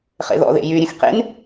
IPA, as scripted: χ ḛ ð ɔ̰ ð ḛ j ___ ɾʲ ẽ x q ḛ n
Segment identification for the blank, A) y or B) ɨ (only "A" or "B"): A